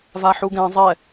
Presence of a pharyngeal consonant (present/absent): present